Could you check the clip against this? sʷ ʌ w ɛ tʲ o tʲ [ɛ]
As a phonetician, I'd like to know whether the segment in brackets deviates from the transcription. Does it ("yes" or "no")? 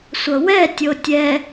no